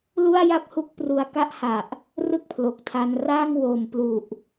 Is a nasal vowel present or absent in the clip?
absent